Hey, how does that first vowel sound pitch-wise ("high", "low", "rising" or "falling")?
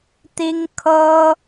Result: high